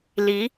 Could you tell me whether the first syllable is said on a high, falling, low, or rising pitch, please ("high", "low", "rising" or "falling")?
rising